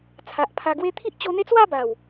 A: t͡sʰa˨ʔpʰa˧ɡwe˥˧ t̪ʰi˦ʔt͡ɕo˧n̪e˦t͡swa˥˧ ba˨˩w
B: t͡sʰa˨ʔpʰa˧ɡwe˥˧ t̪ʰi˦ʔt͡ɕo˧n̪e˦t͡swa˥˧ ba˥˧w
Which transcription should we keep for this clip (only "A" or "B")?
A